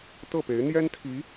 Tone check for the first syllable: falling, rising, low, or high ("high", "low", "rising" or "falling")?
falling